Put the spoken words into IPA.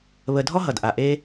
β ə˨ dʱ ɔ˥ ɦ ʌ˩ d ʔ a˩ ʔ e˦

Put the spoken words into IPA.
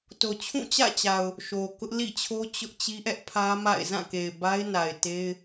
t o˨ t͡ɕʰ ũ˦˨ t͡ɕ ä̰˦˨ t͡ɕ a˨ ʊ̯ | ʃ o˨ k ʊ˦ ʔ l ḭ˦˨ t͡ɕʰ o˦ t͡ɕ ʊ˦ ʔ t͡ɕ i˦ ʔ ɛ˦ ʔ pʰ ä˦ m a̰˦˨ ɪ̯ z ã˦˨ k e˨ ɪ̯ b a˦ ɪ̯ n a˨ ɪ̯ t e˦ ɪ̯

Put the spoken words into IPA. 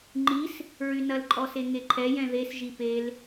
ŋ͡ǃ i s | ɹ y n ɐ l ǃʼ ɔ s e ŋ e ǃʰ ɛ j ɛ̃ ð e s ʒ i p e l

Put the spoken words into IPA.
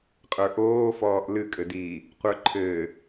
qʼ ə˞ ʔ oː f ɔː ʔ l ɨ kʼ ɘ d iː | qʷ ə˞ ǃʰ ɘː

